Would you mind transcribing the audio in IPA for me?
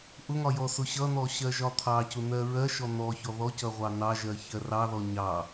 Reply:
ʔʊŋɒ jɔsʊɕʌn̪ɔ ɕɜʒɒt̪ʰɑcʊ n̪ɜɹɜʃɔ n̪ɔçɔ ðɔcʌ ʁʷɑnɑʒɜ çɜrɑðɔ ɲɑ

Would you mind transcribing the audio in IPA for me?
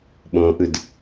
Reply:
ɓõʔɯd

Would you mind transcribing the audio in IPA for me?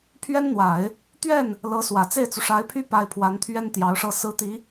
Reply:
pʰɥɛ˥nn̪wa˨˩˦ɪ̯ | t̪ɥɛ˥˩n | lɤ˧˥swä˨˩ t͡se˥˩ɪ̯t͡su˩ʂa˧˥ɪ̯pʰy˥ pa˥ɪ̯ pʰwa˧˥nt̪ʰɥɛ˥n t̪jɑ˧˥ʊ̯ʂɤ˥˩sɹ̩˥ t̪i˧˥

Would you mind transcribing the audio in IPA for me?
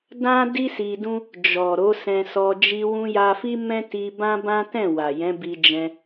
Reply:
dã˦di˦si˧dũ˦ | d͡ʒɔ˨ ɾo˨˦sɛ̃˧sɔ˧ d͡ʒi˧wũ˧ja˧fi˦ mɛ̃˦ti˧bã˦ bã˦tɛ̃˦˨wa˨ jɛ̃˨˦bi˧d͡ʒɛ̃˧

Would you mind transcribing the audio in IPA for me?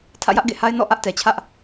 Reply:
tʰä̰˦˨jä˦ʔɡḛ˦˨ha˦ɪ̯ nɔ̰˦˨ ʔä˦ʔtɛ˨t͡ɕʰä˦ʔ

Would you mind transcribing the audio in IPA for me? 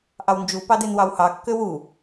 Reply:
ʔɑwnd͡ʒu pɑdenwɑwhɑ kːøwu

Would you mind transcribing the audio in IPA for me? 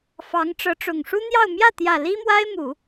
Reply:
fɑ˧˥ŋʈ͡ʂɤ˧˥ʈ͡ʂʊ˨˩ŋ ʂu˥n̪jɑ˥˧ʊ̯ mjä˥˩t̪jä˨˩ li˥mwa˥ɪ̯mu˨˩˦

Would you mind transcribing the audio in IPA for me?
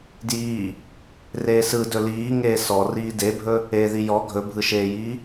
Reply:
djiː | reːsɯdɵ liːŋeː sɔ riːdebʱɵ | eːðijɔ ɡʱɵbʱɯʃeːjiː

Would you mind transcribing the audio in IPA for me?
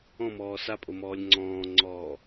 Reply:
ɔ̃mɔː sapʼomɔːlʲ ŋ͡ǀɔ̃ːŋ͡ǀɔː

